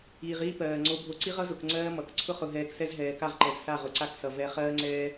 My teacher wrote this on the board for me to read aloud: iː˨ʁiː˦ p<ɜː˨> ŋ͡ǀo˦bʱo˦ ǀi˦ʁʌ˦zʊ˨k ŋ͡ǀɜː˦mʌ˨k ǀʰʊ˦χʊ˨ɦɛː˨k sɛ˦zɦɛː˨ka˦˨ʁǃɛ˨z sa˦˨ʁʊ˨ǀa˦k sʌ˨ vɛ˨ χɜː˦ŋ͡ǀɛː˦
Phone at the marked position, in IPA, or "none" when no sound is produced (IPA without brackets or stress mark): ɜː˨